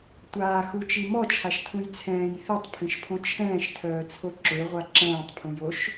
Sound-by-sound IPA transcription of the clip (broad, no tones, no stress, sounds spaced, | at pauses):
tʷ aː x u t͡ʃ i m ɔ t͡ʃʰ a ʃ tʰ ũ j t͡sʰ ɛ̃ː j θ i tˤ pʰ ĩ ʃ pʰ õ t͡ʃʰ ɛ̃ː ʃ tʰ œː t͡sʰ o ǁ ø ʁʷ a ǁ ɛ̃ː tˤ pʰ ũ j o ʃ